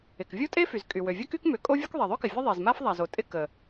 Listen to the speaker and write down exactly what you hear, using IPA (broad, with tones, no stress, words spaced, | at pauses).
ɪ˩kvʲo˥tʼe˥ fy˩zkʼy˩ wø˩vʲə˥ky˥k mʏ˩ kʼo˥vʲu˥k ðˤe˩ðˤø˥kɪ˩ vʲə˥ðˤe˩zma˥f ðˤa˩zo˩tʼɪ˥ kə˩